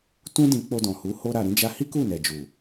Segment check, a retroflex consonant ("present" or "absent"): absent